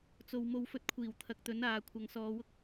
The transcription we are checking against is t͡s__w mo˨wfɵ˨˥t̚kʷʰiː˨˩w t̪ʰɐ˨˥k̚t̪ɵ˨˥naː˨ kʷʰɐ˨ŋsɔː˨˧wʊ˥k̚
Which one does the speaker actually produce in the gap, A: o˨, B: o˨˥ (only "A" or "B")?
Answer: A